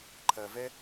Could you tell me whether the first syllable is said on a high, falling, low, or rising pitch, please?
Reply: low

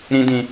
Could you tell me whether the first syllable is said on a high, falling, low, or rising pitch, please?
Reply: high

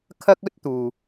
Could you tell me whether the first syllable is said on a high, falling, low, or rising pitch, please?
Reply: high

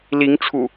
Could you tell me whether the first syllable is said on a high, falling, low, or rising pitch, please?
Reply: rising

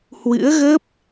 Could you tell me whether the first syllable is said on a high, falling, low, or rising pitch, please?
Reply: rising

